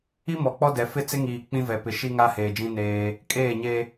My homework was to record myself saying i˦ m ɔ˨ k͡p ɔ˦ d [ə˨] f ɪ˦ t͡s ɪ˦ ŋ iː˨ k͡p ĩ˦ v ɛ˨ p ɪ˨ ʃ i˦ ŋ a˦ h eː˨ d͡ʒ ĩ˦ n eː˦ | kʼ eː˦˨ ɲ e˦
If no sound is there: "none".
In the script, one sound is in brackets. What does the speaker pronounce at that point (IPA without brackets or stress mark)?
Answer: ɛ˨